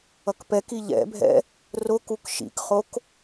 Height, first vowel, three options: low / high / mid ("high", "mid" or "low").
mid